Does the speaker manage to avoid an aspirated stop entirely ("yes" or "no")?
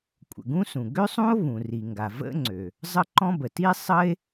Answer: yes